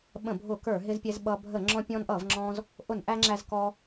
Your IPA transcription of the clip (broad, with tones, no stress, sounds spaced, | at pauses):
ɓ ə̃˧˩˧ bʱ ʊ˧˩˧ k ə˞˧˩˧ ɦ ɪ˧ z pʲ ɛ˧ z ɓ ʌ˧ bʱ ə˧˩˧ ŋ͡ǁ ɔ̃˧ pʲ ɔ̃˧ n ʔ ʌ˧˩˧ v ŋ͡ǁ ɔ̃˧ z | ʔ ʊ˧˩˧ n ʔ æ˧ ŋ͡ǁ æ˧ z k ɔ˧